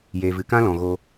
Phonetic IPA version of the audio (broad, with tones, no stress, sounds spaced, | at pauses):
j eː˨ v ɨ˨ k ã˦ l ɔ̃˨ ɣ oː˧